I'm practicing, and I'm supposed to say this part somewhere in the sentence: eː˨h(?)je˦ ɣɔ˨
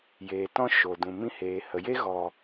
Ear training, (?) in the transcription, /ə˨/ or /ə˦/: ə˨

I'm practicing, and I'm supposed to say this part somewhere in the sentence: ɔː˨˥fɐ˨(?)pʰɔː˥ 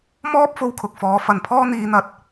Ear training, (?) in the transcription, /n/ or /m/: n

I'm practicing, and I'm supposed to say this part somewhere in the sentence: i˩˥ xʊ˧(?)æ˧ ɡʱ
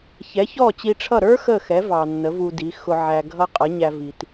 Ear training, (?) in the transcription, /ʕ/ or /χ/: ʕ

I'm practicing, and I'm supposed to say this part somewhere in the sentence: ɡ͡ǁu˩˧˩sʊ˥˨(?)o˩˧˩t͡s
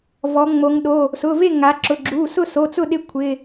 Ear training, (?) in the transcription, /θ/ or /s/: s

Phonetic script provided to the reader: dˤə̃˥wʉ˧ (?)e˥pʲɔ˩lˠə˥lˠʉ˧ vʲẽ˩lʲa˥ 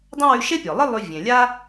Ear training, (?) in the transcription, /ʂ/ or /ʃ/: ʃ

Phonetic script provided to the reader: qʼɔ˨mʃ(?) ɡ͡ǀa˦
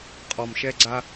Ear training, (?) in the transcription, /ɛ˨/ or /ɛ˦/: ɛ˦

